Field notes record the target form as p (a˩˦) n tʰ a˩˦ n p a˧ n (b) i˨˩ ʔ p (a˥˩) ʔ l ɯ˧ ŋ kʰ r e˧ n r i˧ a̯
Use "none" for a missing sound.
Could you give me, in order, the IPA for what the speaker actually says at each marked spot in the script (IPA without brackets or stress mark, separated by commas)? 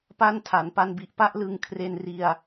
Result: a˥˩, b, a˥˩